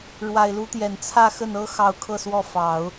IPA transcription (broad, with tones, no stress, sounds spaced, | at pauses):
ɻ w a˨˩ ɪ̯ l u˧˥ t̪ j ɛ˨˩ n t͡sʰ ä˥˧ x ə˥˩ n ɤ˥ x ɑ˧˥ ʊ̯ kʰ ɤ˥˧ s w ɔ˥˩ f ɑ˨˩˦ ʊ̯